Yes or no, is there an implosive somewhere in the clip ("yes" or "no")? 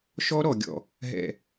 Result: no